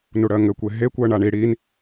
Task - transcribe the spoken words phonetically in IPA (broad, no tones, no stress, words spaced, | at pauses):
nuɽɜŋɘkʷe ɦekʷɜ ɳaɳi ɽin